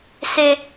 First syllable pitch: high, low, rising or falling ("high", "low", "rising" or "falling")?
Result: high